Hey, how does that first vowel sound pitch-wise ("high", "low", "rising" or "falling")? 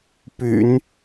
low